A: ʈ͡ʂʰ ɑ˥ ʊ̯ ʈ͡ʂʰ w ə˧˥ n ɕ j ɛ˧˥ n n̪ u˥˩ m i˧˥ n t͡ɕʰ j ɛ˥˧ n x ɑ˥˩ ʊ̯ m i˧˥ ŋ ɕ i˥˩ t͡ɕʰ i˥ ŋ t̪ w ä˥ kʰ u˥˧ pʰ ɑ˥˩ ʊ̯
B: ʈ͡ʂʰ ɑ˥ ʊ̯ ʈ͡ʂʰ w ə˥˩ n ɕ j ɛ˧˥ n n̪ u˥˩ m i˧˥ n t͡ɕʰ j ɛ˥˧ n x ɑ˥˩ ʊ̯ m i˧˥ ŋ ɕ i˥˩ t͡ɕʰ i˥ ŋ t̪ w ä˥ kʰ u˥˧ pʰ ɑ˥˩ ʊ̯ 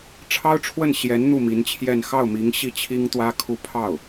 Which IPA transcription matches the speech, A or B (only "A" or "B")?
B